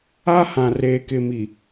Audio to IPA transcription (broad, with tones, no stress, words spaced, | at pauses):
a˦ hã˨reː˨kɪ˨mi˨